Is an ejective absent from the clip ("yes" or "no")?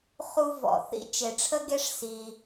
yes